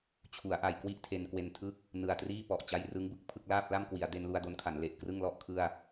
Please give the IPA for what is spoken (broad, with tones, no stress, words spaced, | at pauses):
t͡ɕʰu˩˦a̯ʔa˨˩j kwi˥˩ʔtʰe˧nkwe˧ntʰɯ˥˩k̚ | nɯ˨˩a̯triː˥˩pɔ˨˩ʔ t͡ɕa˦˥jrɯ˦˥ŋbɯ˥˩k̚pʰɯ˥˩k̚ laː˥˩p̚la˥˩mkwi˩˦a̯ de˧nlu˧a̯do˧nkʰa˩˦n le˨˩ʔkrɯ˥˩ŋlɔ˥˩ʔ kʰɯ˥˩a̯